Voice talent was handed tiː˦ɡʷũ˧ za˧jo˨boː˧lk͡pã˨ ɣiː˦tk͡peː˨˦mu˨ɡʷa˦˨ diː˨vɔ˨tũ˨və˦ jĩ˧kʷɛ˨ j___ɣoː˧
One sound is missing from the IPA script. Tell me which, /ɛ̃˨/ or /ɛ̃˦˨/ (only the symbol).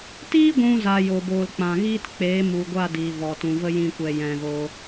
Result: ɛ̃˨